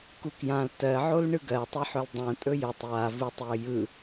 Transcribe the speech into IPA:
kukjãl tɜʕol ɳɯɡɜtˤɯħɵl dˤõ tʼɵjɵtˤ ja vutˤjɵ jɯ

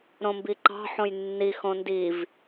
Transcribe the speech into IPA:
ɾõmbiǃɑ̤ ħõjnːi xõndiv

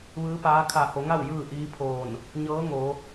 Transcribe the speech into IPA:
ʋɯː˧˥paː˧˥ kʰa˧˩ho˩˧ŋa˥˨w jɯː˥˨ʔiː˧˥pʰoː˧˩n | ɲɤː˧˥ŋo˩˧

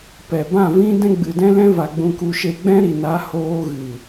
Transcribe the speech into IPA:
pɛ˨bã˦˨vĩ˦ dɛ̃˦ɡ͡bɨ˨dɛ̃˦lɛ̃˦ va˧ɡ͡bũ˧ku˧ ʃe˧ɡ͡bɛ̃˦ɾi˨ na˨˦hoː˧ ɣɨ˨

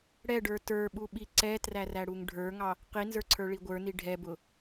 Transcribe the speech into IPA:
ɽɛɖə˞ tə˞ɓuɓi ǀɛtræræɽuŋ ɖʱə˞ŋɑ | qinzə˞ǀʰə˞ɭi ɡʷə˞ni ɖʱɛbʊ

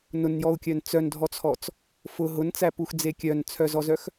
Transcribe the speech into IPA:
nʊnjɔu̯kʲœn t͡sœndʱɔt͡sʰɔt͡s | fʊ ɦʊnt͡sæpuxd͡ze kʲœnt͡sʰœzɔzœx

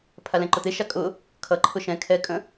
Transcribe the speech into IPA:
pʰalɛ̃ǃʊt̪e ʃakʼʊ | kʰʌǃʰʊ ʃɛ̃ kʰɛkʼə̃

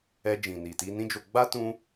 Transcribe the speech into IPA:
ɛ˧d͡ʒĩ˨ni˨ti˧ nĩ˦d͡ʒo˧ ɡ͡ba˦ tũ˧

